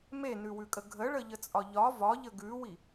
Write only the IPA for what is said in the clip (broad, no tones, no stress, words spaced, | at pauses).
menʉwʉkʼə ɡʱəɭəʎət͡sʼɒ ʎɒ vɒʎə ɡʉwi